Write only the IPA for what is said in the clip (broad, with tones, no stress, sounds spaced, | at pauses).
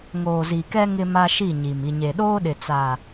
ŋ oː˨ z i˨ k ɛ˦ ŋ ɪ˦ m a˦ ʃ i˦˨ ɲ i˨ m i˨ ɲ e˨ ɗ oː˦ ɗ ɪ˨ t͡s a˨